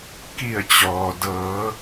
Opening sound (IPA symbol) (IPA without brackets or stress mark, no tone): k